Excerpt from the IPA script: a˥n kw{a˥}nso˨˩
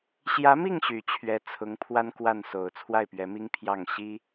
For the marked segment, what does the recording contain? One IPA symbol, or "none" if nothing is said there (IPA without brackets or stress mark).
a˥˩